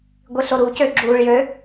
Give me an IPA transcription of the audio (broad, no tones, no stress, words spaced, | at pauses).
ɡʷiɬoɾuːcø ɡ͡ǁuːɭjø